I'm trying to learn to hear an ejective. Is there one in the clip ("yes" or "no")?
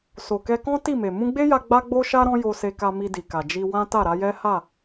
no